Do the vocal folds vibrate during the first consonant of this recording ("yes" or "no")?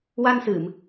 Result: yes